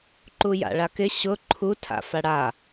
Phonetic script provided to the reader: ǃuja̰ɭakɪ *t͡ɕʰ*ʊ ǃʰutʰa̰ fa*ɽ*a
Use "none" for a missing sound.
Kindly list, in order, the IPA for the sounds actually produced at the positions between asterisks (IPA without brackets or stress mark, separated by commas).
ɕ, ɽ